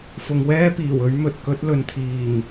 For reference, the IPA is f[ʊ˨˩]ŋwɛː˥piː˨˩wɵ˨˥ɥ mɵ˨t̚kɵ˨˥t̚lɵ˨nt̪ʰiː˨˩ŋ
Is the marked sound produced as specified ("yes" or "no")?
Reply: no